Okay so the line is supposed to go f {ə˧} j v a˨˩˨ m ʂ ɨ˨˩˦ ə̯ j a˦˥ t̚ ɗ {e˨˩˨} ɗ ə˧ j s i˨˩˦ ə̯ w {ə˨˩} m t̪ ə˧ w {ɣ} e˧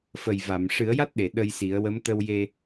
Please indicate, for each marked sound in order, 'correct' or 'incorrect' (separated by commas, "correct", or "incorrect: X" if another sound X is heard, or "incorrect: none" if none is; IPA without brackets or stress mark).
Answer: incorrect: ə˨˩, correct, incorrect: ə˧˥, incorrect: j